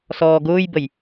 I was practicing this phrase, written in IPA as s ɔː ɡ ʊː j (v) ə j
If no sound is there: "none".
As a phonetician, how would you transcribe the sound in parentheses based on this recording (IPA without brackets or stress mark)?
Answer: b